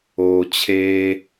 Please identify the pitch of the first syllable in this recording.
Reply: low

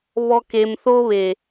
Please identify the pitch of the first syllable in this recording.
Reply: low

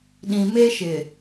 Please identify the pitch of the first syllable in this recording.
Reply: low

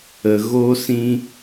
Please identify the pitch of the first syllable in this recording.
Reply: low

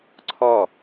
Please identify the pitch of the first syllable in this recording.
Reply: falling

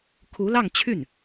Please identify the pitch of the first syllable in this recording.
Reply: rising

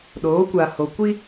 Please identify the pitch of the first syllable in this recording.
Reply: rising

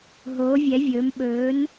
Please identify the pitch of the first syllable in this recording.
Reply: rising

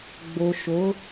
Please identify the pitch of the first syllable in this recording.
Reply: low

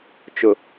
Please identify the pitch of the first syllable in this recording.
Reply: low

